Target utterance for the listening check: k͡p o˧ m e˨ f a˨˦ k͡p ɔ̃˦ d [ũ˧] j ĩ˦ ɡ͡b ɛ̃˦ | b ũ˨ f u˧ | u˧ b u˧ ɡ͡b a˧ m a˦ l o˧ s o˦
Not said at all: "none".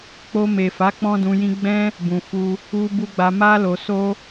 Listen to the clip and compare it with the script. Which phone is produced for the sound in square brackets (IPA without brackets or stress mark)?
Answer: ũ˧